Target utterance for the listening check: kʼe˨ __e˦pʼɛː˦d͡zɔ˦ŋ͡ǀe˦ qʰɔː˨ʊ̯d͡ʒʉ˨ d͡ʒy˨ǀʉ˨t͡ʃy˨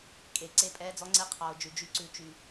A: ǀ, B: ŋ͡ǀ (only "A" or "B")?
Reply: A